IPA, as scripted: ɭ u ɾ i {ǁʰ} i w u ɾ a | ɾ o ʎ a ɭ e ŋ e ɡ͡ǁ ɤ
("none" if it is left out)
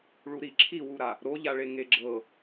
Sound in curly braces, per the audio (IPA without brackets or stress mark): ǁʰ